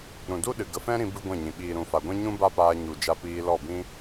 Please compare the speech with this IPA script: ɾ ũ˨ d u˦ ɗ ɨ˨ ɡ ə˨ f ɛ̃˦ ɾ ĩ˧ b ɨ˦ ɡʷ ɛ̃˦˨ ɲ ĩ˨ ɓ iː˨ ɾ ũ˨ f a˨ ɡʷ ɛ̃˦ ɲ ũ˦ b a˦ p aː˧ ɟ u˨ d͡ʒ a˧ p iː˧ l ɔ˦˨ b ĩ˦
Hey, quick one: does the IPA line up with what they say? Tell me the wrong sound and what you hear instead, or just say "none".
ɟ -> ɲ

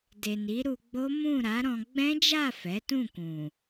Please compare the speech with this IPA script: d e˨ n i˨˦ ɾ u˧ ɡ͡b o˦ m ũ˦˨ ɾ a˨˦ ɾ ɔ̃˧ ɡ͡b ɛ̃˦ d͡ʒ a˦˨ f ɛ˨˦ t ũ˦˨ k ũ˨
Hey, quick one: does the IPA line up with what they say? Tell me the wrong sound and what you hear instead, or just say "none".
none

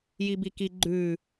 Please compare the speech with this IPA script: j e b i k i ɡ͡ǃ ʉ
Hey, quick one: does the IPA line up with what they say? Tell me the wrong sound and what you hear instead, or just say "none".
e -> i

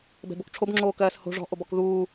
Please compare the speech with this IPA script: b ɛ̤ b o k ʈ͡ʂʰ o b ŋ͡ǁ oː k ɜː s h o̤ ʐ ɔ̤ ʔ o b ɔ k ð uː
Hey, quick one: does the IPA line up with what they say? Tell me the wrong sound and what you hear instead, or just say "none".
none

